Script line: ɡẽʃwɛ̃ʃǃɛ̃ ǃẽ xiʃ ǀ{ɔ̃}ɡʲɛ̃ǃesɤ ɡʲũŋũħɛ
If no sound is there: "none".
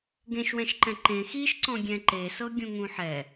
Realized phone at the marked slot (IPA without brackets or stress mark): ɔ̃